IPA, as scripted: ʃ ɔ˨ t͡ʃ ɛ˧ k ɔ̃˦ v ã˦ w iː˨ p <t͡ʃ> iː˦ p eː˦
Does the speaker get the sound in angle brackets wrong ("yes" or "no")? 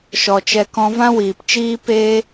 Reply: no